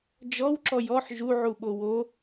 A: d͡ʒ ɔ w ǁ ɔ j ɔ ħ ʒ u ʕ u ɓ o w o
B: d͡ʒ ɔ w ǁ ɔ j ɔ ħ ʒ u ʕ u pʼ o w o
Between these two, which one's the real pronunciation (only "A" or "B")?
A